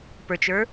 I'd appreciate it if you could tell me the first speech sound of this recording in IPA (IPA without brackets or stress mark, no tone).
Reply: p